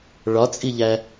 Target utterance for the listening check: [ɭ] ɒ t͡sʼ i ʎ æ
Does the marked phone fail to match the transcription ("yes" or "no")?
no